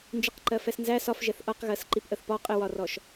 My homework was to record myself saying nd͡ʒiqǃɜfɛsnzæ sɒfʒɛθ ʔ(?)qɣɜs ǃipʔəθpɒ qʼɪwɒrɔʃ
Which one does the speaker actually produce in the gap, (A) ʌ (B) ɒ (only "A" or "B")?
A